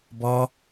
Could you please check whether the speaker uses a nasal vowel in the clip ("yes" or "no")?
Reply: no